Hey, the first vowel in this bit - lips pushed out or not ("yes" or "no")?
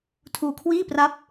yes